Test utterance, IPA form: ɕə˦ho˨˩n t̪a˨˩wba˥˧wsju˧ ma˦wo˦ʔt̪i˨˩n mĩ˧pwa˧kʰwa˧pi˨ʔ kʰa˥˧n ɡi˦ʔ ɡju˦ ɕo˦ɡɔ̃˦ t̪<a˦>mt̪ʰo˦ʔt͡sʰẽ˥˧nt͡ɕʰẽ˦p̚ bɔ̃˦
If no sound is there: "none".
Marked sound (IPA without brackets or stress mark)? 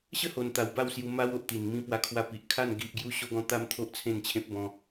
a˦